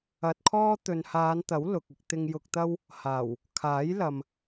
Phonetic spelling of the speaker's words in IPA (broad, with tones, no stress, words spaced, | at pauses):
ɐ˧t̚kʰɔː˥ t̪ɵ˨nhaː˨˧nt̪ɐ˨˥w lʊ˨k̚ɪ˧k̚ t̪ɪ˨ŋjʊ˨k̚t̪ɐ˧w | haː˨˩w | kʰaː˨˥jlɐ˨m